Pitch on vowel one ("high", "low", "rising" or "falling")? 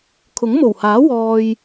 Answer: rising